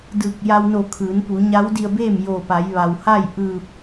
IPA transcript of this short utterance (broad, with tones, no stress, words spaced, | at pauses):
dɯː˧˩k̚ ja˧wno˧˩ kʰɯː˩˧npu˩˧ ɲa˧˥wdi˧ə̯beː˥˨m joː˧˩pa˩˧jʋa˩w ha˥˨j ʔɯː˧˩p̚